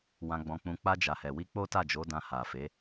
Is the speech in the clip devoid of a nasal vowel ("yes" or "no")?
no